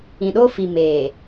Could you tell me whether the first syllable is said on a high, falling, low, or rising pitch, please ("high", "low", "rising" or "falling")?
low